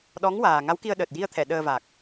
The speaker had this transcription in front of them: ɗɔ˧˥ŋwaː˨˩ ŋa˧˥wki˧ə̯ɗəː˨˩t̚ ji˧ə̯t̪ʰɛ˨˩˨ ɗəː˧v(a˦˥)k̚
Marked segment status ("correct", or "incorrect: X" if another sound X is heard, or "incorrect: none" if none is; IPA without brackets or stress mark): incorrect: a˨˩